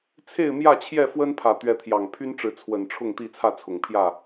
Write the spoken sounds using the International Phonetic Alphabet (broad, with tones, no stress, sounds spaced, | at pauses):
t͡sʰ e˥˨ ɪ̯ m j ä˥˨ t͡ɕʰ j ɛ˥˨ f w ə˦ n pʰ ä˨˩ t̪ ɥ ɛ˨˦ t̪ʰ j ɑ˨˩ ŋ pʰ y˦ n ʈ͡ʂ ɻ̩˨˦ t͡sʰ w ə˨˩ n ʈ͡ʂʰ ʊ˥˨ ŋ t̪ i˥˨ t͡sʰ ä˥˨ t͡sʰ ʊ˨˩ ŋ pʰ j ä˥˨